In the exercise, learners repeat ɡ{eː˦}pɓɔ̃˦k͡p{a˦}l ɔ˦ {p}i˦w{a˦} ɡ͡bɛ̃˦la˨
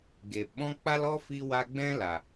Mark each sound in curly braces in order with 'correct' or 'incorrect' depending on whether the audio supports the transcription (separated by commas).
incorrect, correct, incorrect, correct